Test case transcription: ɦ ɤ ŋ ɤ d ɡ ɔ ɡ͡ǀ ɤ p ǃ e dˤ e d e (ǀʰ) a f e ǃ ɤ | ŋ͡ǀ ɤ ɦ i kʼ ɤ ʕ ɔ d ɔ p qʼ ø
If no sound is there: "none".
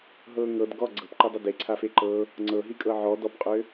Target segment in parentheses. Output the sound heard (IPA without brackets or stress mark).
ǀʰ